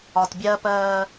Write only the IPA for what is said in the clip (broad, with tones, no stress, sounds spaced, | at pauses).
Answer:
ɒ˨ t bʲ ɜ˦ p ɜː˦